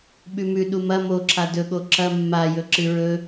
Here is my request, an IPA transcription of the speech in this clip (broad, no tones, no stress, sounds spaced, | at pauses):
ɓ ʉ m ʉ ɗ u m ɐ m o ǁʰ a d ɵ ɠ o ǁ ɐ mː a j ɵ ǁ ɨ ɹ ɵ